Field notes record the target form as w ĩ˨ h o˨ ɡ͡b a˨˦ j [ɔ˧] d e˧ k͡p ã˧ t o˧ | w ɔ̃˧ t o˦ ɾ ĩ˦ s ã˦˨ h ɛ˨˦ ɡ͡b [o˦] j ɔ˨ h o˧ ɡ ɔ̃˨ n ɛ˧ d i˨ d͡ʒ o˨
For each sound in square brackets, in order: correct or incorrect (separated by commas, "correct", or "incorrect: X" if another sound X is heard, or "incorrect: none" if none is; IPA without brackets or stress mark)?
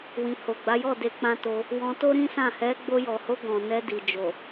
incorrect: ɔ˦˨, incorrect: o˧